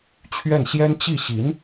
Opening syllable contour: falling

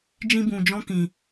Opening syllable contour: high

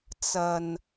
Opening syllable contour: low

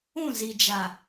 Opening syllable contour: falling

